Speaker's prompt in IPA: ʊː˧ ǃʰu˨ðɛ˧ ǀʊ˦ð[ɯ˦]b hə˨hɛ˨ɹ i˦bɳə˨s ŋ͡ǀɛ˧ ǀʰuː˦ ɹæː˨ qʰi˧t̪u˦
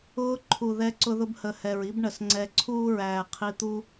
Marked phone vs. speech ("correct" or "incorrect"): incorrect